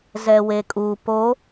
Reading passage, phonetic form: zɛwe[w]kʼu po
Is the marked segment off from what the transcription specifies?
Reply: yes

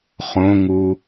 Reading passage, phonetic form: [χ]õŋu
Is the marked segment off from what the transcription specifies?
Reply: no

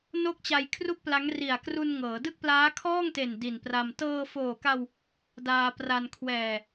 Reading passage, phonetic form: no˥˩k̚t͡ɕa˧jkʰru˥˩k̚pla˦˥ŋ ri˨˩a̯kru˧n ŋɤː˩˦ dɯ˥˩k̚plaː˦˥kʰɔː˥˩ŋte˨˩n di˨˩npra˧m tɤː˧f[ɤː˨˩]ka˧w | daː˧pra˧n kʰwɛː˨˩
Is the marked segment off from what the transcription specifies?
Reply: yes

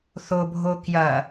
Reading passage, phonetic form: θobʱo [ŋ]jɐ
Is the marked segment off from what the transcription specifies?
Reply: yes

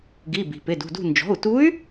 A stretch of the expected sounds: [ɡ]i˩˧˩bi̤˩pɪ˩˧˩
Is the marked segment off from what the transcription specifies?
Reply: no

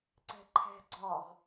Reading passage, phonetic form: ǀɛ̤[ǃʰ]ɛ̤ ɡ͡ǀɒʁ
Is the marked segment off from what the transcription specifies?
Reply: no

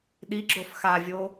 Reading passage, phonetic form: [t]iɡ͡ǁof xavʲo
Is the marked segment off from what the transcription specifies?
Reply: yes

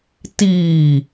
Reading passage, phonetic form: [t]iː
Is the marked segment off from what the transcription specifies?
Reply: no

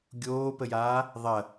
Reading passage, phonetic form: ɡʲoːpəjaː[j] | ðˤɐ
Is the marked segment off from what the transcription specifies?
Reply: yes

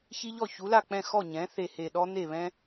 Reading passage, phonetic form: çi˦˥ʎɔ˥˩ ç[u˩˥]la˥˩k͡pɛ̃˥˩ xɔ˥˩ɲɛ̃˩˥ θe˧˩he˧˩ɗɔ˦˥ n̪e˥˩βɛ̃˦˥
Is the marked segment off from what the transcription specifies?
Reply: no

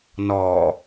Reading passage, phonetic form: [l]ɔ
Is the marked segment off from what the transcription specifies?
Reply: yes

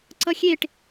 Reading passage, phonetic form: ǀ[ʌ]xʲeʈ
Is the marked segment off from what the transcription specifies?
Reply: no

